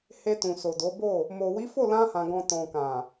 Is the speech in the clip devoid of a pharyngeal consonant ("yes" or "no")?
yes